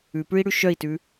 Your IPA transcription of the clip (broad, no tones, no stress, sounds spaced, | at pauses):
ʉ p ʉ i̯ ɽ ʉ ʃ œ i̯ t ʉ